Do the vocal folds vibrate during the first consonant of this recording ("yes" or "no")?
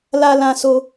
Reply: yes